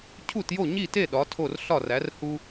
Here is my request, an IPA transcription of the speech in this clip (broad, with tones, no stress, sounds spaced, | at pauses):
cʰ u˥˨ t j o˥˨ ɲ i˥˨ t e˥˨ ɗ ɒ˨˥ tʰ o˥˨ r ɬ ɒ˥˨ r æ˨˥ r h u˥